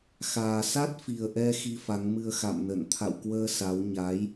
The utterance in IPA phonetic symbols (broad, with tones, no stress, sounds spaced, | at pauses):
x aː˨˩ s a˦˥ t̚ f i˨˩ ə̯ ʔ ɛ˧ x i˧ f a˨˦ ŋ m ɨ˧ ə̯ x a̰˧˨ m n ə̰˧˨ n t̪ʰ a̰˧˨ w k w əː˧ s a˨˦ w ɲ aː˨˦ j